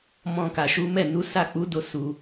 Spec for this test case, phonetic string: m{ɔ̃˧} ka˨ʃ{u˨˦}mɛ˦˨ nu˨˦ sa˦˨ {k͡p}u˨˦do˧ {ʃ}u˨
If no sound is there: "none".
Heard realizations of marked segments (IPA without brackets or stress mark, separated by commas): ɔ̃˧, u˨˦, k͡p, s